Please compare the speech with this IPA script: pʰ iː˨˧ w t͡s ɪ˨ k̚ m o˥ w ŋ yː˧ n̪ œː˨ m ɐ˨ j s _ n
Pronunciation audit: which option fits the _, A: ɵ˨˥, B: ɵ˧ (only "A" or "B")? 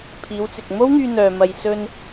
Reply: B